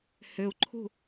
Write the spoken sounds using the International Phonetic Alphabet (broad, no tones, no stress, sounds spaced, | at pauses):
h ʏ u̯ ǃʰ ṳ